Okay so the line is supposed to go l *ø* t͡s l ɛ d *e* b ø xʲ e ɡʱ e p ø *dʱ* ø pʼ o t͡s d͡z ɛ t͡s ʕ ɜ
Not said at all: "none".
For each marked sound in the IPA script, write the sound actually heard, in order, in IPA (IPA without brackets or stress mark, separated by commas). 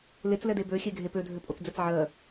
e, e, dʱ